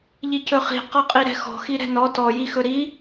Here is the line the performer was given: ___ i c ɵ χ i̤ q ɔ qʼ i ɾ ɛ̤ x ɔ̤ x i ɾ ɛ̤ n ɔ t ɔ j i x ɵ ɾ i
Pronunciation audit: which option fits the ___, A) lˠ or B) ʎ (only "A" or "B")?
B